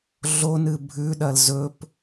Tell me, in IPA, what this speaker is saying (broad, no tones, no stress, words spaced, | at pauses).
ɮonɨ bʱʉɗɐl zɵp